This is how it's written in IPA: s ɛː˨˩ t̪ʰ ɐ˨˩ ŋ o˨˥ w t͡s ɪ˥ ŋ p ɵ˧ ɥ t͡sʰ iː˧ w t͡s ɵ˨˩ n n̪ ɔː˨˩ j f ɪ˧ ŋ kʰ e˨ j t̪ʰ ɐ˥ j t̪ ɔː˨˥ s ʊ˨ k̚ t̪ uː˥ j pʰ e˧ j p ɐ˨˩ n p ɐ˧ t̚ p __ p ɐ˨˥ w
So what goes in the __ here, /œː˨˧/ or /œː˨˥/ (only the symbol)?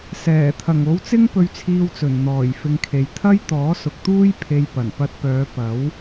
œː˨˧